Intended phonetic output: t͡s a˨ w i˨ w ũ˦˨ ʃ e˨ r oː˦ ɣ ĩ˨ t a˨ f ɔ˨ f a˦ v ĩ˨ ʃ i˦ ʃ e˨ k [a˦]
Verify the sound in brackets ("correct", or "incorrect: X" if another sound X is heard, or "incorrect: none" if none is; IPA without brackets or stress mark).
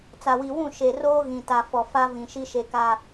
incorrect: a˨